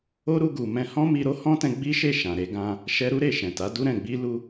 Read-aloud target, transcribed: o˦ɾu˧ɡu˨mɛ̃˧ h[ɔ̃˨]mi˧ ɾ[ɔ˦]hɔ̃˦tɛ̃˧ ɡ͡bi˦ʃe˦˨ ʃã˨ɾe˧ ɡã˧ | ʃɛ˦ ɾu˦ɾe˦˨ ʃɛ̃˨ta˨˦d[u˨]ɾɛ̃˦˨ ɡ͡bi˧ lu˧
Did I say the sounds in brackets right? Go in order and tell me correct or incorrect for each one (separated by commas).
incorrect, incorrect, incorrect